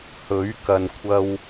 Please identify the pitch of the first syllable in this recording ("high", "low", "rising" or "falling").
rising